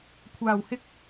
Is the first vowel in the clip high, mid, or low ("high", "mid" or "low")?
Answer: low